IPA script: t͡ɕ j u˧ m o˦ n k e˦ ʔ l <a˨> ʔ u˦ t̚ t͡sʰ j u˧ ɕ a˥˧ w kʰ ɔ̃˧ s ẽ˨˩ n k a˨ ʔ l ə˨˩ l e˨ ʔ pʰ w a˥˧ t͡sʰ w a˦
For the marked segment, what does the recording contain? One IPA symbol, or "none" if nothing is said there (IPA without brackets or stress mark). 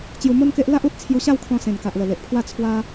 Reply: a˦